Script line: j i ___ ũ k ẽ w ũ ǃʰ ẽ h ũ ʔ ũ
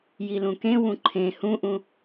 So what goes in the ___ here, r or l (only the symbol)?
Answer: l